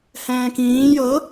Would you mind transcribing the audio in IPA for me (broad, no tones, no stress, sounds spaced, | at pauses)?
h ɛ̃ː k ĩː j ɤ